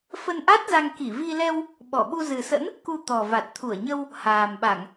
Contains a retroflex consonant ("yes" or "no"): no